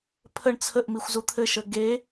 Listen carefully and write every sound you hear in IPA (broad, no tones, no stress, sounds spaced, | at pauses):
pʰ ə ɳ t͡sʰ ə ʔ m i xʷ z u t̪ʰ ɘ ʃ ə ɡ e